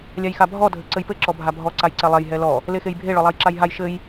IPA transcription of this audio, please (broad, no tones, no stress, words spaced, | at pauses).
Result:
lʲajxabʱɔ dʱɘǀɘjpɘ ǁɔbʱabʱɔ ǀajǀɛlˠɛj ɦɛlɔ | lexejbʱe ɭɔlˠajǁajɦaj ʃɘj